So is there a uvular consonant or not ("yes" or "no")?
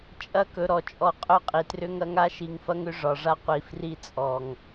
yes